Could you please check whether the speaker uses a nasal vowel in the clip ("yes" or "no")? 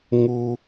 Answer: no